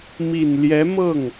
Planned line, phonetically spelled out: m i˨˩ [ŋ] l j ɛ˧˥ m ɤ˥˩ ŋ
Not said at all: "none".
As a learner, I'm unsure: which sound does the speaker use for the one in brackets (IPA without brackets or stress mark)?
n